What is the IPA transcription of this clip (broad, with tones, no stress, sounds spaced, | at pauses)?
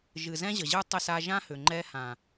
ʒ ɨ˨ z ɛ̃˦ ʑ ə˨ ʑ ɯ˦ tˤ ə˦ s a˦ ʒ ã˦ h ʏ˨ ŋ͡ǃ ɛ˦ h ã˨